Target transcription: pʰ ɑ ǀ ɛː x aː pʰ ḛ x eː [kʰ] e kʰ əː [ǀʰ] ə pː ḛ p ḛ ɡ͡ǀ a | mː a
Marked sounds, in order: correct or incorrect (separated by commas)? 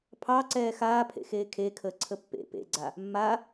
correct, correct